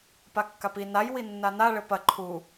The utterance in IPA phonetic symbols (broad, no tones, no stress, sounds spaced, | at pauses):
p a kː a p i n a j w i nː a n a ɭ ɘ p ɐ ǃʰ u